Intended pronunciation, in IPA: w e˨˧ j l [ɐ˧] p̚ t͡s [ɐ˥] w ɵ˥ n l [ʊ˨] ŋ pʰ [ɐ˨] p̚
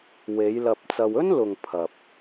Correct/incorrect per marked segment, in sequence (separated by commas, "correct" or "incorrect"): correct, incorrect, correct, correct